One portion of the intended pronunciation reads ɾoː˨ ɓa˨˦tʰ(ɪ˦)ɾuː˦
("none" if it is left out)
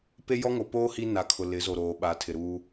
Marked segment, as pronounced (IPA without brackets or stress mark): ɪ˨